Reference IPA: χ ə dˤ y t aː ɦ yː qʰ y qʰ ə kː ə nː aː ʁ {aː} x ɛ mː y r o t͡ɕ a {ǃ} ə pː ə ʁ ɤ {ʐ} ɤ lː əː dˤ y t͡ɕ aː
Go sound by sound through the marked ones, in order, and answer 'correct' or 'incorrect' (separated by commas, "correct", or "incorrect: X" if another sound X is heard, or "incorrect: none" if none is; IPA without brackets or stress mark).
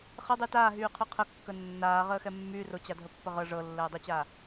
incorrect: əː, incorrect: dʱ, correct